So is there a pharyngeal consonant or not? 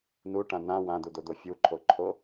no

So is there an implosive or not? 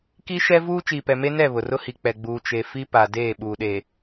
yes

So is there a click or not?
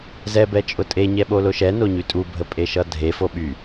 no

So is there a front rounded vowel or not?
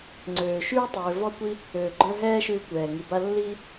yes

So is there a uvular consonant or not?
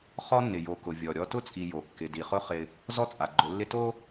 yes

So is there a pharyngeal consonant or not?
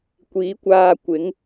no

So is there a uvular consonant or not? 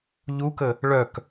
no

